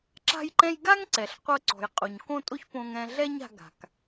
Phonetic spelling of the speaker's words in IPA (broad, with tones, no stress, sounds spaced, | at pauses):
ǁ a̤˥ j ǃ ɛ̃˥ j ɡ a˥ ŋ ǀ ɛ˩ ɬ qʷ ɤ˧ ǀ ɔ̤˩ j qʼ u˩ ɲ k õ˥ tʼ o˥ ç p õ˧ ŋ ɛ̃˧ ɮ ɛ˥ ɲ a̤˧ ɡ a̤˩ k